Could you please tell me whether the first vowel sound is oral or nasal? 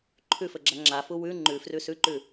oral